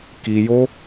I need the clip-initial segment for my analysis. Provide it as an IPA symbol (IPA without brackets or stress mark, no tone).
k